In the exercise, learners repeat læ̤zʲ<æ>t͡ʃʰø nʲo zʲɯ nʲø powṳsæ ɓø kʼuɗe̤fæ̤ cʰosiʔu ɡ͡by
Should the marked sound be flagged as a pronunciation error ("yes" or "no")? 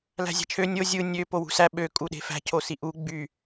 yes